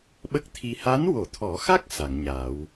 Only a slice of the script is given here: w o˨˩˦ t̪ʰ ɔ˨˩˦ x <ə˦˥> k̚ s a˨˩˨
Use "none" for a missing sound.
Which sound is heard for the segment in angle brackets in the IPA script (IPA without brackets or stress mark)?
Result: a˦˥